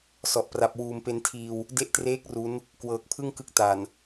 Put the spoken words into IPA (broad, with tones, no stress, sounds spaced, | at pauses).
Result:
s ɔ˨˩ ʔ p r a˨˩ p̚ w uː˨˩ m p e˧ n tʰ iː˧ w | d e˦˥ ʔ t r eː˦˥ k̚ r u˦˥ n | k w ɤː˨˩ k̚ pʰ ɯ˥˩ ŋ k ɯ˦˥ k̚ t a˨˩ n